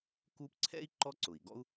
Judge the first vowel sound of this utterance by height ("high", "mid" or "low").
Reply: high